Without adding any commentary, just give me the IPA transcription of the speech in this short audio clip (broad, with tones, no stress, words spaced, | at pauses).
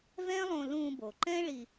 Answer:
vɛ̃˥lˠõ˧ lũ˧bo˩ ǃɛ̃˥ ɭi˧